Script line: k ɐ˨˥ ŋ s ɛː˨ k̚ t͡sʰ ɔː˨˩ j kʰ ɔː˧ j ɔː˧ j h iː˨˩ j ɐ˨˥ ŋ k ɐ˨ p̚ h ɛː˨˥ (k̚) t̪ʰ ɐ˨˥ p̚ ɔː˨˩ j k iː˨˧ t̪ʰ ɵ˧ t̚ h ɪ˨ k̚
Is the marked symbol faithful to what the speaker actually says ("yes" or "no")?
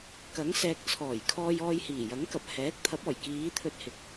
yes